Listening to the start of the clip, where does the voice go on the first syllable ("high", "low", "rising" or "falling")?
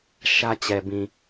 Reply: high